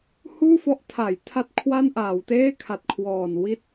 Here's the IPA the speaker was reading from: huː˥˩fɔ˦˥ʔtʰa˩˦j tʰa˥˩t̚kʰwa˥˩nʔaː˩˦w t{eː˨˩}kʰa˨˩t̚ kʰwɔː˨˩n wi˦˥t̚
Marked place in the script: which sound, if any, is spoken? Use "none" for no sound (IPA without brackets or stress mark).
eː˥˩